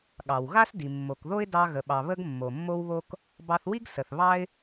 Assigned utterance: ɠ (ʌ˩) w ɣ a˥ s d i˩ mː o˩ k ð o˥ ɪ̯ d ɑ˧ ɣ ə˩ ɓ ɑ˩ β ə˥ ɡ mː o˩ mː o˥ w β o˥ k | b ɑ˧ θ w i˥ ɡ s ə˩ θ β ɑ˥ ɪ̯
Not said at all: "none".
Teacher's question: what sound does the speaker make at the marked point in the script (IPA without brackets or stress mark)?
ɑ˩